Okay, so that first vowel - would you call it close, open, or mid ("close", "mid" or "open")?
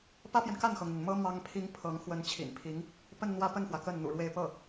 open